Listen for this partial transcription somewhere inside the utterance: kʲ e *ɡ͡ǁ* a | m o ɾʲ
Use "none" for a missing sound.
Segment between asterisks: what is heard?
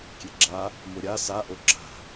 ɡ͡ǁ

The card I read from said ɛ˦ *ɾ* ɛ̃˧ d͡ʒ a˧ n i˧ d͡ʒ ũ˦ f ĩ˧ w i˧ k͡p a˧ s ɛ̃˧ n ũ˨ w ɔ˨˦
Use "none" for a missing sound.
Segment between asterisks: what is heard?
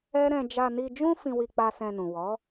ɾ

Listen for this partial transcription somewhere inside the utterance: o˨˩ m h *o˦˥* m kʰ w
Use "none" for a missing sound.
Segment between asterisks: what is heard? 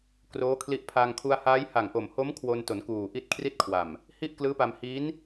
o˦˥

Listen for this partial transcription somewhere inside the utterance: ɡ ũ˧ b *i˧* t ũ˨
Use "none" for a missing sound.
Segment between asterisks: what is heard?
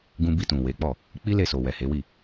i˧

